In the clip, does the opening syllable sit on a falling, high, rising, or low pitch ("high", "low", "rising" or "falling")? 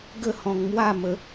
falling